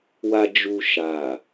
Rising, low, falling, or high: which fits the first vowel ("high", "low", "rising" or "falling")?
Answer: low